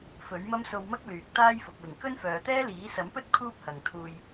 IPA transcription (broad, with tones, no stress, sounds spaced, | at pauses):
f ɵ˨˥ ɥ m ɐ˥ m s o˧ w m ɐ˥ k̚ l yː˨ k̚ t̪ aː˥ j f ʊ˨ k̚ w ɪ˨˩ ŋ k ɵ˥ n f œː˨ t̪ ɛː˥ l iː˨˥ s ɐ˨˥ m p ɵ˥ t̚ kʰ uː˥ p̚ h ɐ˨ ŋ t̪ʰ uː˨ j